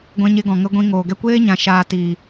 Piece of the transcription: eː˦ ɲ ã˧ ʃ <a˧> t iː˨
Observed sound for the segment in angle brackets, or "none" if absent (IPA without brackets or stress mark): aː˧